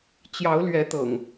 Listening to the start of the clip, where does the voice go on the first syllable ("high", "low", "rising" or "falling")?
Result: rising